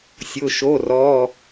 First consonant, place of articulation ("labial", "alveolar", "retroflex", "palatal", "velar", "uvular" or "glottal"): alveolar